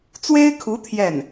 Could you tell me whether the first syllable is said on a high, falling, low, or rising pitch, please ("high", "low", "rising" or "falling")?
high